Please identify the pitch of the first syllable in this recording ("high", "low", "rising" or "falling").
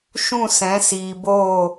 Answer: falling